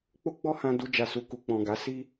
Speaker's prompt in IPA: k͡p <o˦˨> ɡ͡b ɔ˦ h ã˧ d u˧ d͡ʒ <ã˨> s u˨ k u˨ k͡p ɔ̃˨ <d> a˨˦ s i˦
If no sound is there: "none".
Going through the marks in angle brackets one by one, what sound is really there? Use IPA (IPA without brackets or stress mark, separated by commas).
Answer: o˦, a˨, ɡ